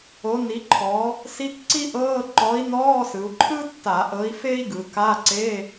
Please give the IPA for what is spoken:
o˩˧ni˩˧ǃʰɔ˩˧ | si˧˥˧kǀi˥ʔɤː˧˥˧ ǃɔ˨˥i̯nɔː˧˥˧sɯ˩˧u̯ ǃʰɯ˥tːa˧˩˧ ʔɤ˨˥i̯fe˥i̯ɡɯ˩˧ ka˧˥˧ǀe˧˥˧

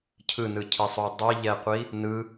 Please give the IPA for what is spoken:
cʰɯnɯcʰisˤu dˤiʎɛqʷi | nɯ

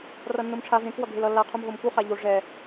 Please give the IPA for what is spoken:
rʌnːomʈ͡ʂʰa vẽk wʌɡʱelʌ lːa qʰumɦomku χaʎo ʐɛ

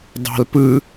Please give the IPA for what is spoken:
dˤɑ̤lpɯ

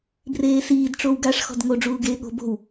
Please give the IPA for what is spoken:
breːsiːd ʈ͡ʂowɡaʂ xɔ̤dŋo ɖ͡ʐuːɡeːɠo̤ bo̤w

